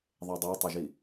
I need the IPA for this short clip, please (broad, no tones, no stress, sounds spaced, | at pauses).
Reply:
ðˤ e dˤ ə˞ tˤ ə ʒ i